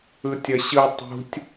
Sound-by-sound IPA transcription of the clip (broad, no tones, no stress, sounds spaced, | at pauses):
ɯ tʲ ʌ ɕ ɯ tˤ ṳ tʲ